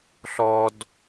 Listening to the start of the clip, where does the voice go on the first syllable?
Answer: high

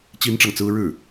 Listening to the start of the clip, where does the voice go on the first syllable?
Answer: high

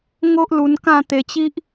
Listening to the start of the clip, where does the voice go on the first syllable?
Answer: high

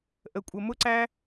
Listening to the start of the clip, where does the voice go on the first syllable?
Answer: low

